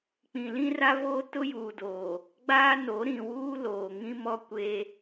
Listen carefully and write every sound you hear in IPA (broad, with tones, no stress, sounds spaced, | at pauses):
k͡p ĩ˨ l ĩ˦ r a˦ v oː˦ t ʊ˦ j uː˨ d oː˨ | ɡ͡b aː˦ n o˨˦ ɾ ĩ˨ w uː˦ l oː˨ ŋ ĩ˦ m ɔ˦ kʷ e˦